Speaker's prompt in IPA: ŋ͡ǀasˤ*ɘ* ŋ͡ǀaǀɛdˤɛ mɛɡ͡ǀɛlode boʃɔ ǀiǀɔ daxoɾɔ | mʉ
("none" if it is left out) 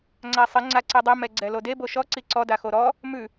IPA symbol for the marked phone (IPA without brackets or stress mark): ɘ